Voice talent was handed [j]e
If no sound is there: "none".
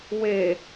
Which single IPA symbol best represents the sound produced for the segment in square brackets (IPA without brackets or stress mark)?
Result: w